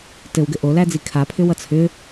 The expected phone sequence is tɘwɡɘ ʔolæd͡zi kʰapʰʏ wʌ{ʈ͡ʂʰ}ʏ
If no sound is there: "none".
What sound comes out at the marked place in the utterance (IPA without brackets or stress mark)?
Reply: t͡sʰ